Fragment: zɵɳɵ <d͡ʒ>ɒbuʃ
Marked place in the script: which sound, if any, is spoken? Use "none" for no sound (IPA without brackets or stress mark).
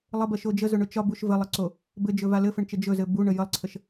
t͡ʃ